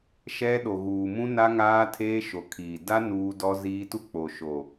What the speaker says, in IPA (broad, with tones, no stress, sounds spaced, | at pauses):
ʃ ɛ˦ ɗ o˨ ɣ uː˨ m ũ˦ n a˦ ŋ aː˦ tʰ eː˦ ʃ o˨ kʰ iː˨ d a˦ n uː˦ d ɔ˦ z iː˦ t u˦ k͡p o˨ ʃ o˨